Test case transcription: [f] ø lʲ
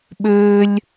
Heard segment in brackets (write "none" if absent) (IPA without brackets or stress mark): ɓ